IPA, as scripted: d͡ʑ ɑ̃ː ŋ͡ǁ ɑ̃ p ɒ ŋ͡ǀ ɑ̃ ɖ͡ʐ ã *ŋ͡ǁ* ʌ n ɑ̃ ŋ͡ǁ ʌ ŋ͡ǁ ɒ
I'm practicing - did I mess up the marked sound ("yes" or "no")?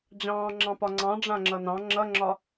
no